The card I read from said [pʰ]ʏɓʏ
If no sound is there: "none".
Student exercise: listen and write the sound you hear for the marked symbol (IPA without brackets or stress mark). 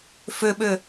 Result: f